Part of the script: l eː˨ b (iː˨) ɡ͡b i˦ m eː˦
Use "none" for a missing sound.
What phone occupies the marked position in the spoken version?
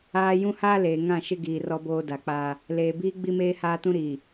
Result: iː˦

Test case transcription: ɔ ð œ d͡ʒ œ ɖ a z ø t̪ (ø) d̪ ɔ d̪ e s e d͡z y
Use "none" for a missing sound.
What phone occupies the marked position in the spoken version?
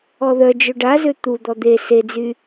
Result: u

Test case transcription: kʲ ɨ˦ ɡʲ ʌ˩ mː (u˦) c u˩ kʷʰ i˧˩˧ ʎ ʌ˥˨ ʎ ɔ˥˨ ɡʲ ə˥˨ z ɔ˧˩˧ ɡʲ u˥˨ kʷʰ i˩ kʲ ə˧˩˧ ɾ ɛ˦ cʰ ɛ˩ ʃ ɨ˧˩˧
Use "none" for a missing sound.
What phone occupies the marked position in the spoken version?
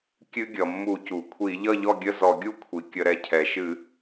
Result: u˧˩˧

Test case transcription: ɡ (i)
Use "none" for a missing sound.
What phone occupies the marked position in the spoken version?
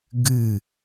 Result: ɨ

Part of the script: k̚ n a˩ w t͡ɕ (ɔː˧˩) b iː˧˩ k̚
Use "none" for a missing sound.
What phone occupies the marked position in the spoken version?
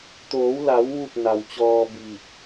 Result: ɔː˧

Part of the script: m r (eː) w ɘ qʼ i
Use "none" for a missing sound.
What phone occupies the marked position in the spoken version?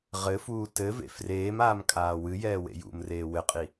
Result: eː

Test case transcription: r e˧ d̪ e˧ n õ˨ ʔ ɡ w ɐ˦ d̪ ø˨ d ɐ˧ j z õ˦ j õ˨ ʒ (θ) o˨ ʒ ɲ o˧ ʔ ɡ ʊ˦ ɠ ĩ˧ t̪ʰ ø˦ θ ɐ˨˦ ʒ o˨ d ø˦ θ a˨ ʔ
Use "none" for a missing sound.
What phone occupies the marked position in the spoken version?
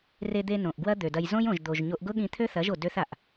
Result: d̪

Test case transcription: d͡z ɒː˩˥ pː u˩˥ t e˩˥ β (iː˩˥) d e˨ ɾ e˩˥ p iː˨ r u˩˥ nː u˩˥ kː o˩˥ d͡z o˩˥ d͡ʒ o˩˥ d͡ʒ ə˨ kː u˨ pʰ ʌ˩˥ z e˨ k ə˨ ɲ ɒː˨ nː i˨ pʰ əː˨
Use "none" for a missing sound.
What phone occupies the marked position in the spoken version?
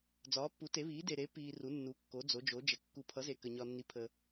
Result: iː˩˥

